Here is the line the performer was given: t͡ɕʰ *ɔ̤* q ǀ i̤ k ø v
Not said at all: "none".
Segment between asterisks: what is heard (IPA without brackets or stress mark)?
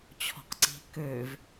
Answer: ɔ̤